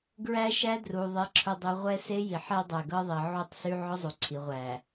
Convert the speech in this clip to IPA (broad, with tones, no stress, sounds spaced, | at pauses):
ɡ ɹ æ˦ ʃ æ˦ d r u˨ ðˤ e˨ ǁʰ ʊ˨ dˤ y˨ ʁʷ ɛ˦ s e˦ j i˨ ħ ɛ˦ dˤ æ˨ ɡ ɤ˦ ðˤ i˨ ʕ u˦˨ tˤ s y˦ ʕ ʊ˦ zˤ u˨ ǀʰ i˨ ʁʷ æ˨